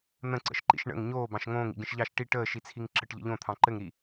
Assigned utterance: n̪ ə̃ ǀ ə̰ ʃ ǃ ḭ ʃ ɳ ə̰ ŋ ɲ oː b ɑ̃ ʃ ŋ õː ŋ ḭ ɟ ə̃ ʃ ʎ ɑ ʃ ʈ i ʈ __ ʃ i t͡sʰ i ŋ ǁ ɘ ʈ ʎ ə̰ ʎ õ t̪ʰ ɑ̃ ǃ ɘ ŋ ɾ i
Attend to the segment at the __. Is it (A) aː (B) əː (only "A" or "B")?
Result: B